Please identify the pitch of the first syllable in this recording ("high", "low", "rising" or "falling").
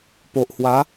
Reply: low